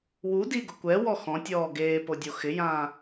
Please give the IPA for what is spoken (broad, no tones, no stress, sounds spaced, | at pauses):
w u d i ɡ ʊ kʷ ɛ w ɔ x ɔ̃ tʲ ɔː ɡ eː p o dʲ o x ɪ j ãː